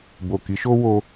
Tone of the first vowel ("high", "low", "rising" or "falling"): low